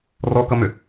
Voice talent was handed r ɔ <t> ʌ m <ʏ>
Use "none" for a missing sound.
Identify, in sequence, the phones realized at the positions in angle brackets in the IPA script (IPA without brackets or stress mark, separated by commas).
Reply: k, ʏ